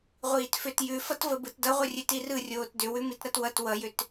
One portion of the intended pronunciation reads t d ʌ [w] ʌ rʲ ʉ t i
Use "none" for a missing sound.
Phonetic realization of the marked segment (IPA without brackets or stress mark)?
ʁʷ